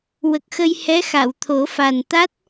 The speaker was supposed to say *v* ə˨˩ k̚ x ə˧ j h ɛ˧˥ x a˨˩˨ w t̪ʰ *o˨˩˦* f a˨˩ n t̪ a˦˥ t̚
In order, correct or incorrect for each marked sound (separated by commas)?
incorrect, correct